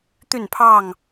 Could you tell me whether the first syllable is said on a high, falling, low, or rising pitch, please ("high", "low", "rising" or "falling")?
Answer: falling